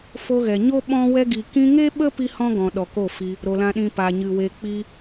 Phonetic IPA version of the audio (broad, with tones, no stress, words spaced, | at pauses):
fo˧ɣɛ˨ ɲo˦ ɓɔ̃˧ wɛ˧ɡi˨ kĩ˧ŋe˦ɓə˦ pi˦hɔ̃˦ɡɔ̃˨ ɗɔ˨ko˦˨fi˧ | ɾo˨lã˨ɗĩ˨ pa˨ ɲɨ˨we˧ k͡piː˧